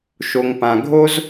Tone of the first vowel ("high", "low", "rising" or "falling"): low